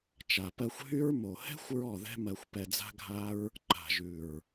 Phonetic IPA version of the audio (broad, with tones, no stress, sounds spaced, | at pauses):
t͡ʃ a˨ p ɜ˧ xʷ ɦ y˦ ɹ m o˨ h ɛ̤˦ xʷ ɹ ɔ˦˨ ð ɛ̤˦ m ɜ˧ xʷ p ɛ˧ d͡z a̤˦ ɡʱ a˦ ɹ | ǃ a̤˨ ʒ ʉ˨ ɹ